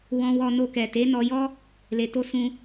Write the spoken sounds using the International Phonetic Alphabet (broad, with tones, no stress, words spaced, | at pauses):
wɔ̃˧wɔ˧no˧kɛ˨ te˨˦nɔ˧jɔ˦ | le˨to˧ sũ˧